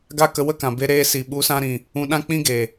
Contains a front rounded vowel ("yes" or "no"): no